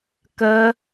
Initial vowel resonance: oral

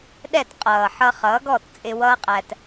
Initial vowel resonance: oral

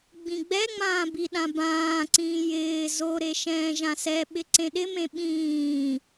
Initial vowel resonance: nasal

